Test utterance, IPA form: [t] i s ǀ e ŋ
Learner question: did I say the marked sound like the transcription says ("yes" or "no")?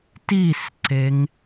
yes